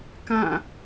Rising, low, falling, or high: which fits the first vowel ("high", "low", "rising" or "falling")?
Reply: falling